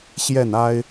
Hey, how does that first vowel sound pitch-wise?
falling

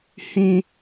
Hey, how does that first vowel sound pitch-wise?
high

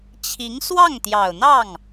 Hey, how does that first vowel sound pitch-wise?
rising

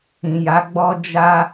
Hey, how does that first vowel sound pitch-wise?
low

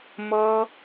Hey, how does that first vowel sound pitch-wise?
high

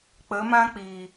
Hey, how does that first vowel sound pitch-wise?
rising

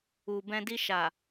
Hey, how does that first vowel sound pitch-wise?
low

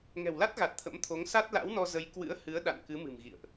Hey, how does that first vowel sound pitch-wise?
low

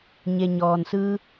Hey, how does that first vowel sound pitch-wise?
low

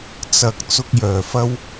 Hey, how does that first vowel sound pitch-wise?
rising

